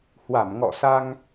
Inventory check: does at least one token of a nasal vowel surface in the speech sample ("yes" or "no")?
no